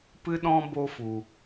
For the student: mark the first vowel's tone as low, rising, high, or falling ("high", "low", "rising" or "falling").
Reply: high